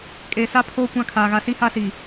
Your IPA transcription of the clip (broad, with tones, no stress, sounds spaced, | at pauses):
kʼ e˨ s a˦ pʰ oː˦ kʷ ã˦ kʰ aː˨ ɣ a˨ s i˦ h a˦ s i˨